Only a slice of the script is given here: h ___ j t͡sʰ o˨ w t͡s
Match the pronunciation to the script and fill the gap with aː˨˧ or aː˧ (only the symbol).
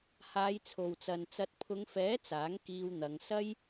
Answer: aː˨˧